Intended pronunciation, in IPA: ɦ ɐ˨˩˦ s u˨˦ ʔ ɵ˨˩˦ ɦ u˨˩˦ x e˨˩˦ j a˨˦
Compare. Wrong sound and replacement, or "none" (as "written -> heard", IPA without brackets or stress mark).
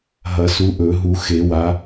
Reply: j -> w